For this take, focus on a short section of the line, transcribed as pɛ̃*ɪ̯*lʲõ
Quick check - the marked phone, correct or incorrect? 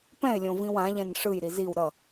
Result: correct